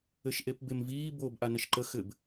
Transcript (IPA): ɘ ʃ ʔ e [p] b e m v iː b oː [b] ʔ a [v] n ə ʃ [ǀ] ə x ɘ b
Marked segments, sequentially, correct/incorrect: correct, correct, incorrect: none, incorrect: ǃ

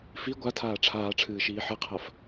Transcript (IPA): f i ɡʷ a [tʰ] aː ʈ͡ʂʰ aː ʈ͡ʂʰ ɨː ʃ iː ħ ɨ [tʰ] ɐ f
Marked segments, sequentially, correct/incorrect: correct, incorrect: qʰ

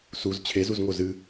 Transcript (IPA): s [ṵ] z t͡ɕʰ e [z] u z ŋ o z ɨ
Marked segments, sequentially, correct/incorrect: incorrect: u, correct

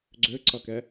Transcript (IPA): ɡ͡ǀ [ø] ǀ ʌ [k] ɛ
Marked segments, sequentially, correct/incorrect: correct, correct

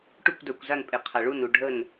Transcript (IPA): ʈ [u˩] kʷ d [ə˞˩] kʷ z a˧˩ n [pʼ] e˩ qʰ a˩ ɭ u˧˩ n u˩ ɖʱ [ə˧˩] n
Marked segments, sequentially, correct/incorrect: incorrect: u˧˩, correct, correct, correct

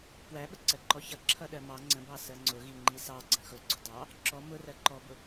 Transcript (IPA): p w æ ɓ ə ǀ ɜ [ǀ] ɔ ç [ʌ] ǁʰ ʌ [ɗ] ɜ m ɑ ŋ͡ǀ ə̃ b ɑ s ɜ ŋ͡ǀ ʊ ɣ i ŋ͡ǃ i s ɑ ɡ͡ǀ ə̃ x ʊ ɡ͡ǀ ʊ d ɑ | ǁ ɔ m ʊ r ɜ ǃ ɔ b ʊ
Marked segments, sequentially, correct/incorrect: incorrect: ǃ, correct, correct

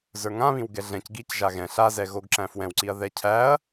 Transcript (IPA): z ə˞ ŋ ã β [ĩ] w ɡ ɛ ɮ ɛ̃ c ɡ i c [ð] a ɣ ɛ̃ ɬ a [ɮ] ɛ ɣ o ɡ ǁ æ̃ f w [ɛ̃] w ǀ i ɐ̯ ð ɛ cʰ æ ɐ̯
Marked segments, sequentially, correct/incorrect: correct, incorrect: ʒ, incorrect: z, correct

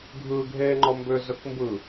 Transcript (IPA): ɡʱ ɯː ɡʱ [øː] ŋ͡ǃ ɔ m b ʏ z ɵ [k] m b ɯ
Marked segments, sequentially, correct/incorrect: incorrect: eː, correct

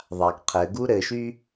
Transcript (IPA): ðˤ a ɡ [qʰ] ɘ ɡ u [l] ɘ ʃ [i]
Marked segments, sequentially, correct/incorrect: correct, incorrect: ɾ, incorrect: y

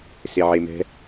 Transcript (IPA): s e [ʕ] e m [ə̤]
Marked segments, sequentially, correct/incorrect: correct, incorrect: ɛ̤

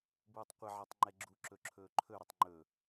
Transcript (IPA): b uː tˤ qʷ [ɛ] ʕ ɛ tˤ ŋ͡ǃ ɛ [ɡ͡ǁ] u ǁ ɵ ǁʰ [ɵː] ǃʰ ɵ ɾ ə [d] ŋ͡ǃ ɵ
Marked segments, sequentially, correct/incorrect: incorrect: ɪ, correct, correct, incorrect: tˤ

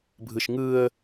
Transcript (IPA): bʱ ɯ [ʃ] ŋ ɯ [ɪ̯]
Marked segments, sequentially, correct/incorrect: correct, incorrect: ə̯

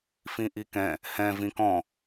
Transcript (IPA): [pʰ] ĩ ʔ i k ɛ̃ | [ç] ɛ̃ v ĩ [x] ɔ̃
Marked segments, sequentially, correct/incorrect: incorrect: f, incorrect: h, incorrect: k

